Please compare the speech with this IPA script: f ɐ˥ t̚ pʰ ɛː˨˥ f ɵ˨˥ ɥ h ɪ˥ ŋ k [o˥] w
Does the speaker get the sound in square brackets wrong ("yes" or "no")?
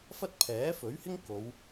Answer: yes